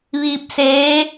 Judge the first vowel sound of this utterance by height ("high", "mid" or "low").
high